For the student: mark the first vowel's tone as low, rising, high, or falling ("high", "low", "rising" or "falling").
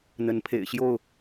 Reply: rising